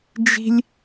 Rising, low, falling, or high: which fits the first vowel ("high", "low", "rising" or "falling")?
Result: high